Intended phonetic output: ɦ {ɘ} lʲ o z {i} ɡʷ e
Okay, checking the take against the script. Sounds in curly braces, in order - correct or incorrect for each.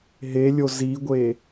incorrect, correct

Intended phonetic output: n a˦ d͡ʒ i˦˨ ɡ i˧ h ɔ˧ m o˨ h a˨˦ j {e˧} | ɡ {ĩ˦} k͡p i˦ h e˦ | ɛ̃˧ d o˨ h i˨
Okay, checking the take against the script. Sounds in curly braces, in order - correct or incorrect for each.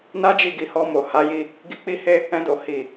incorrect, incorrect

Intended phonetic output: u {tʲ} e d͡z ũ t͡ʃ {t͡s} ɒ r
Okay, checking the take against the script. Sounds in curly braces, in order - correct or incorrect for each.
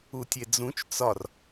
correct, correct

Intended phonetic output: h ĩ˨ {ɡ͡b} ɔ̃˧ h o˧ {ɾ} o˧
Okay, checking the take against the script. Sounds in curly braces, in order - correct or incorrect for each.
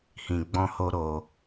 correct, correct

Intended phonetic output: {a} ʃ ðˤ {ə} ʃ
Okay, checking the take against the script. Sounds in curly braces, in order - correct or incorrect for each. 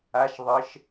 correct, correct

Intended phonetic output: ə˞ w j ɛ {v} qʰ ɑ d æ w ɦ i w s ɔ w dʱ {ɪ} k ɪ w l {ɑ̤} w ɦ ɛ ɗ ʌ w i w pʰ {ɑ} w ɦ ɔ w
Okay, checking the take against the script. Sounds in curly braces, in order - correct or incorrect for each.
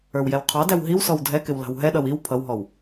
incorrect, incorrect, correct, incorrect

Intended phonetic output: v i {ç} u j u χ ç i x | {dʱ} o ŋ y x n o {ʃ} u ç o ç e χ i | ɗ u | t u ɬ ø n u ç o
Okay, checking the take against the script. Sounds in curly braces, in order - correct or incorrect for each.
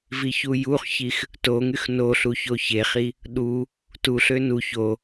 correct, incorrect, incorrect

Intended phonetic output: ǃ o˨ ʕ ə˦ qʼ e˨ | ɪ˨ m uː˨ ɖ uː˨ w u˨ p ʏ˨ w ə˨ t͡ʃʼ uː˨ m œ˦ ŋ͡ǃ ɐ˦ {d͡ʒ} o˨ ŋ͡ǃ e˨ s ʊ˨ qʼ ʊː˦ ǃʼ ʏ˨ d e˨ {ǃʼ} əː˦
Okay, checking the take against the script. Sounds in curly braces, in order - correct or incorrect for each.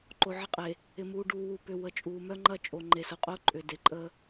incorrect, correct

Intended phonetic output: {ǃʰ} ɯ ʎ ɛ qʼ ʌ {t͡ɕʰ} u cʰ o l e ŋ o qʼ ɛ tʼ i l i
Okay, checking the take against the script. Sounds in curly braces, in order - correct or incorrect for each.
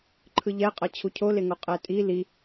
correct, correct

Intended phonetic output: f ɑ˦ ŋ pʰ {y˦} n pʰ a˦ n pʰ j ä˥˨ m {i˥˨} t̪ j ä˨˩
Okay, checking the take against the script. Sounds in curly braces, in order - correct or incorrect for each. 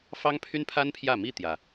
correct, correct

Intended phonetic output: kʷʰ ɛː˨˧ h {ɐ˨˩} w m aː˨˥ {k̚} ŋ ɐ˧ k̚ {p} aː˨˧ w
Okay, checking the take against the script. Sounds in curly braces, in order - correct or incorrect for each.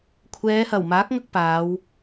correct, correct, correct

